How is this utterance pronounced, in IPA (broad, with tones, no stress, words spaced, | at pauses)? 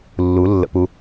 lːu˨˦lːə̰˧pu˧